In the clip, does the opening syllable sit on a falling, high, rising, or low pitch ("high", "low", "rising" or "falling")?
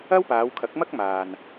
high